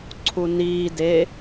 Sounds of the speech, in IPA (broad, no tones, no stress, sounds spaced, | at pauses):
ǀʰ u n iː d e